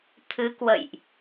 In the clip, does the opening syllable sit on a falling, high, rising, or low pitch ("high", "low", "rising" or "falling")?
rising